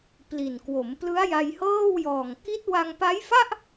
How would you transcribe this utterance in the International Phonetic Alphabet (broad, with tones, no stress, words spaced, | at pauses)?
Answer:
pli˨˩n kwo˩˦mplɯ˦˥a̯ ja˧jhɤː˥˩wjɔː˨˩ŋ ki˦˥t̚wa˧ŋpa˦˥jfa˥˩ʔ